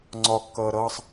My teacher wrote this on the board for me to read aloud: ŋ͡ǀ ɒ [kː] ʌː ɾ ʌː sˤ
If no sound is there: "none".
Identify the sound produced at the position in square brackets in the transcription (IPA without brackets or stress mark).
kː